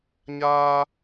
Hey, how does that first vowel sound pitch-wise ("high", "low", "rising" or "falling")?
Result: high